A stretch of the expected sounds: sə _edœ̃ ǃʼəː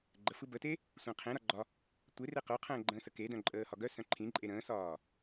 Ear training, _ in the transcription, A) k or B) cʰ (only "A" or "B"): A